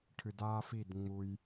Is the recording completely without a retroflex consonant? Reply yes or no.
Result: no